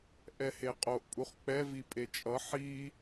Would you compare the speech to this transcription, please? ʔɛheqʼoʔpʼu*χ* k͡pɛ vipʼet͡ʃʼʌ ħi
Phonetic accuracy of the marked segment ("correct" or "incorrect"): correct